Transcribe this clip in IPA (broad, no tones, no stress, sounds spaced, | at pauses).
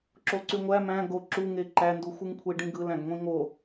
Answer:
ǁ o ǀ y ŋʷ æ m æ̃ ɡ o ǁ u ŋ e ǃ æ n d u xʷ ɯ ŋ kʷʰ e ɖ ĩ ɡ ɯ l æ̃ ɡ ŋʷ ĩ ŋ o